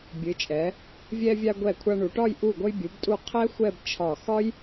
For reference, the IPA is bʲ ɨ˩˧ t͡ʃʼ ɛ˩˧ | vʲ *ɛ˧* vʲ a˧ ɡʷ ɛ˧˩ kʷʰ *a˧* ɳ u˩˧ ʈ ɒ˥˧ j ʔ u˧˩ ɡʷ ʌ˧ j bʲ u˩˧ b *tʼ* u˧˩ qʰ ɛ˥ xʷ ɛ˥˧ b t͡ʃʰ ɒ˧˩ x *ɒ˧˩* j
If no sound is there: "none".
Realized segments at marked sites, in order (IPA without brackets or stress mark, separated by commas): ɛ˧, a˧, tʼ, ɒ˥